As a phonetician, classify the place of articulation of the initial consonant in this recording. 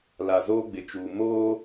alveolar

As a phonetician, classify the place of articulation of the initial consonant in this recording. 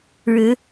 retroflex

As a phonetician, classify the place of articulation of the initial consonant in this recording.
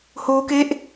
glottal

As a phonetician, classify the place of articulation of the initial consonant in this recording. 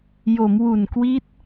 palatal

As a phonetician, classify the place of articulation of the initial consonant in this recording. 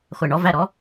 uvular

